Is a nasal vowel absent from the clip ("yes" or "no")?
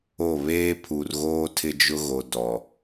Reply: yes